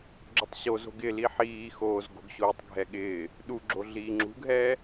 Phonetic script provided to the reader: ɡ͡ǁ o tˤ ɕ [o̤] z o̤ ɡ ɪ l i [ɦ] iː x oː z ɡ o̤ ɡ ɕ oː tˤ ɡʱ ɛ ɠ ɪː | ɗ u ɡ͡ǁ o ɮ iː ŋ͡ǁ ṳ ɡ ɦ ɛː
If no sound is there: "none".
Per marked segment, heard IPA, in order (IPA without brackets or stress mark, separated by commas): o, ħ